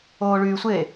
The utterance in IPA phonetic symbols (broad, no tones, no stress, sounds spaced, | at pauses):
oː ɭ yː sʷ eː